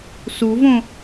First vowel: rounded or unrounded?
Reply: rounded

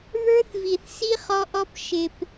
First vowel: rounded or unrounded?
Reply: unrounded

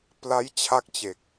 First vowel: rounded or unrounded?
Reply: unrounded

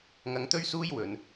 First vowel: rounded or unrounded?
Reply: unrounded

